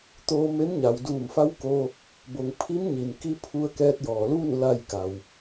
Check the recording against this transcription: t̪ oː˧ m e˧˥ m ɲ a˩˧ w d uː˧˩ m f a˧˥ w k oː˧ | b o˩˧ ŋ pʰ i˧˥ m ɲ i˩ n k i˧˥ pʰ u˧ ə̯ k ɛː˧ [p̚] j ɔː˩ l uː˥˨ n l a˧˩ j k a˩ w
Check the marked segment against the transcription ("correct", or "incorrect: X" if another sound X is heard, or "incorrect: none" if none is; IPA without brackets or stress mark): incorrect: t̚